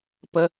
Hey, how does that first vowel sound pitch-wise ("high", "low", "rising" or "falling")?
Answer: high